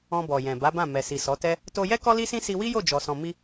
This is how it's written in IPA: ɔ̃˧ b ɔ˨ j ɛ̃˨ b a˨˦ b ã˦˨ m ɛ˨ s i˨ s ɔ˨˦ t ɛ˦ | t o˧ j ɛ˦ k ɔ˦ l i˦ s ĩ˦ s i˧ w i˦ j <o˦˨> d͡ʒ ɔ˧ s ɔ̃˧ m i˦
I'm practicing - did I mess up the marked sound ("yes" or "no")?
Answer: no